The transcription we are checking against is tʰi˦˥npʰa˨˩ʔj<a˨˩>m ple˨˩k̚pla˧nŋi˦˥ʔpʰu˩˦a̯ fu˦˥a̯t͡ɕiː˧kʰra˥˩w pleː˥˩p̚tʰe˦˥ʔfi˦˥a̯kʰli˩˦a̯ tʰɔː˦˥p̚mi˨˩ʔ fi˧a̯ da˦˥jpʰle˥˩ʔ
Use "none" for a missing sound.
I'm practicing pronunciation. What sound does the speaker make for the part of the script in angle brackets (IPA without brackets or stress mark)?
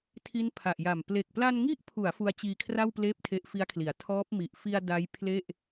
a˨˩